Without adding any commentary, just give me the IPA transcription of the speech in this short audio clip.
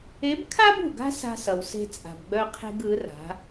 e˧˥ b kʰ a˥ b ṳ˩ ɡ a̤˥ s a̤˧ s ʌ˩ w s e̤˧ t͡sʼ a̤˩ b ɡ͡b œ˧ qʰ e̤˧ ɡ ɯ˩˧ r a̤˩˧

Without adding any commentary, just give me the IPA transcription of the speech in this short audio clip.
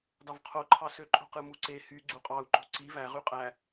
d ɑ v qʰ o ǃʰ ɑ s ø ǃʼ o̤ q ɯ m u ǀ e h y ɡ͡ǀ u qʼ ɑ u̯ ǃ o̤ ǀ i v æ ʁ y qʼ æ

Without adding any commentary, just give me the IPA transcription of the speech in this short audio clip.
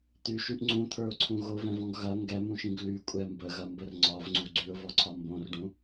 t̪ y ʃ y ʔ ŋ͡ǀ ũ t̪ʰ ə˞ ʊ̯ ǀʰ ũ ɣ o v ɛ̃ v ɔ̃ ɡ ɣ ɐ ŋ ɡ ɛ m ũ ʃ ĩ ɡ l y kʷʼ ɛ m b ə ɣ ɐ m b ə r ŋ͡ǀ ɒ v ŋ͡ǀ u ɡ͡ǀ y ʊ̯ v ɔ ǀʰ ɒ m b õ r ɖ ũ

